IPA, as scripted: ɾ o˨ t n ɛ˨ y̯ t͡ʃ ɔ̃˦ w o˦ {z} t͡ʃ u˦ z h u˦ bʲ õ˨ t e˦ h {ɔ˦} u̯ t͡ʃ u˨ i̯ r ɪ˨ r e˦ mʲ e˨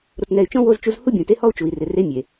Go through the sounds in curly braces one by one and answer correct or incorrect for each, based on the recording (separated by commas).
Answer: correct, correct